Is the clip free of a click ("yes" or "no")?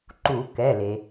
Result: no